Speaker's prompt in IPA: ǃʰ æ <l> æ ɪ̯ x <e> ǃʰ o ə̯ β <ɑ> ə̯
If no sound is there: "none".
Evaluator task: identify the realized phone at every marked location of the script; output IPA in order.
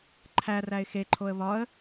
r, e, ɒ

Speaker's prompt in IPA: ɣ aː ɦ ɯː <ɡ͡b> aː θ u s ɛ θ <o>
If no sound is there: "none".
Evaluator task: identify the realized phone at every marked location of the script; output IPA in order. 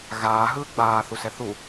ɡ͡b, u

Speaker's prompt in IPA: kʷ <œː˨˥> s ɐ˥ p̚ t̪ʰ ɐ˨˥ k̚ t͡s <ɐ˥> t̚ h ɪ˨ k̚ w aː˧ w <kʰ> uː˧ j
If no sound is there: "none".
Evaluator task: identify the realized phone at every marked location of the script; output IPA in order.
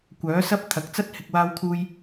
œː˨˥, ɐ˥, kʰ

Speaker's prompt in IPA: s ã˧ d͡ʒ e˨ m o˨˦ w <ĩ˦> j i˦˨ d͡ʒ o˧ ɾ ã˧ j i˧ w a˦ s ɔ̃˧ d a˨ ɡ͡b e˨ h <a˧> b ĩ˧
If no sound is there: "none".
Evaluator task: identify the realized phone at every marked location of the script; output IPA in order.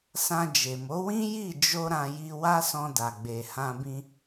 ĩ˦, ã˧

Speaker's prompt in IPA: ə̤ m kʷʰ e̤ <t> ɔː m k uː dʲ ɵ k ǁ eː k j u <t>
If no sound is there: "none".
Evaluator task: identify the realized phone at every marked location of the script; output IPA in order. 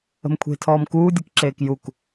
tʰ, k

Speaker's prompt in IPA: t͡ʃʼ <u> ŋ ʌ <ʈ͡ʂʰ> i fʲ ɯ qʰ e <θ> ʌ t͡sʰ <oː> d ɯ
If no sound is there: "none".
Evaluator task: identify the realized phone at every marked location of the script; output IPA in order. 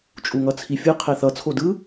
u, t͡sʰ, θ, o

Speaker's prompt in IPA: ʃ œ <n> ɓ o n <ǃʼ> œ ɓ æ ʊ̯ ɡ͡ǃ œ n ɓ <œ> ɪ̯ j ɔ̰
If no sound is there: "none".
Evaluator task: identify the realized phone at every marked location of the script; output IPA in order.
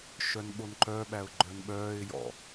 n, ǃ, œː

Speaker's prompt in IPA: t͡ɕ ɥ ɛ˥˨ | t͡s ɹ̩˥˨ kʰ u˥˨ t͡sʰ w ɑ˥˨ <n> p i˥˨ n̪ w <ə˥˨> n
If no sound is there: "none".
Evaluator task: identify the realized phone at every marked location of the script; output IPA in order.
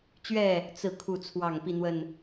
ŋ, ə˥˨

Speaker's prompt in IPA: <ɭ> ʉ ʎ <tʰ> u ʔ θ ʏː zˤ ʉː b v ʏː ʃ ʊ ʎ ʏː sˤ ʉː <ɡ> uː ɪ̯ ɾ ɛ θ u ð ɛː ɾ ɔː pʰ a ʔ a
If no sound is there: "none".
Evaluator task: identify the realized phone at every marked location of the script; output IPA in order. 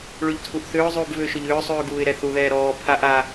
ɭ, tʰ, ɡ

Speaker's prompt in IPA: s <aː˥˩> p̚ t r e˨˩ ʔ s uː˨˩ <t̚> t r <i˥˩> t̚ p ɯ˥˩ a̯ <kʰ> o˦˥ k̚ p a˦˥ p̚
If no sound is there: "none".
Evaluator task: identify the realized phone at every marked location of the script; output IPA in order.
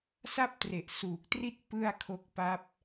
a˥˩, k̚, i˥˩, kʰ

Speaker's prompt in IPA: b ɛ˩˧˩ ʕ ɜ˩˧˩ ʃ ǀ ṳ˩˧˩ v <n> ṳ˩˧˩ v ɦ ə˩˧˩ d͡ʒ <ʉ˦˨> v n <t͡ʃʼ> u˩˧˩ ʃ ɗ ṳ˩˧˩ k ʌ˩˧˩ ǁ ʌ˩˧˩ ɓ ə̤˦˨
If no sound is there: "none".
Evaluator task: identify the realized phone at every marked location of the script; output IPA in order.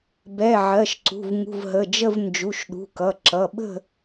ŋ, ə˦˨, d͡ʒ

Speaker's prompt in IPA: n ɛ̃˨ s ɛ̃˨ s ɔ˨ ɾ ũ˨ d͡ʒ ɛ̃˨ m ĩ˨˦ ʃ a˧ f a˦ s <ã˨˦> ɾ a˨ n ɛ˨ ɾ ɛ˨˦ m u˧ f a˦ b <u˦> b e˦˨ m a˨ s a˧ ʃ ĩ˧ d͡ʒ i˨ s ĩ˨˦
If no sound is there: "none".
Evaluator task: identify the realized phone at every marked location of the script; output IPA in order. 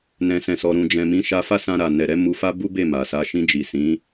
ã˧, u˦

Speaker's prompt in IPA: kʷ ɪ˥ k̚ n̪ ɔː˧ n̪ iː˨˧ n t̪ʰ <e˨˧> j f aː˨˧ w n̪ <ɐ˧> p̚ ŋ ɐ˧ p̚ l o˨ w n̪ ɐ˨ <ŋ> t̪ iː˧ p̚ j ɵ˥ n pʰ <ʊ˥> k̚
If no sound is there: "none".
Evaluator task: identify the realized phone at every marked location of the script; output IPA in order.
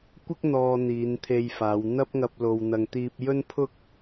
e˧, ɐ˥, ŋ, ʊ˥

